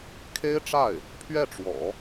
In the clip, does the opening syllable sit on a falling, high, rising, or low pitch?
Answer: high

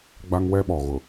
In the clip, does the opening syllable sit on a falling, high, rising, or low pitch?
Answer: high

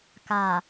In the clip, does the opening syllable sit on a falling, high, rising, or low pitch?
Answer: low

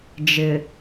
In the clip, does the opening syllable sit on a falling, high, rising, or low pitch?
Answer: low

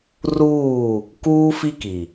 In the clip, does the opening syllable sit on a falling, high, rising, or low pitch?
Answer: falling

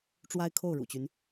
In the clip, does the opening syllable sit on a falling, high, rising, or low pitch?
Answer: high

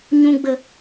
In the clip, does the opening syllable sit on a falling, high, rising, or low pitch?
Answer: low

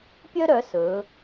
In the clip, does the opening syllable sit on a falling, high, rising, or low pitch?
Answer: high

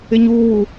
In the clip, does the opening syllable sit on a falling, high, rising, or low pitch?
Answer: high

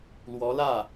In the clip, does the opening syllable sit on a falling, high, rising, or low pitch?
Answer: rising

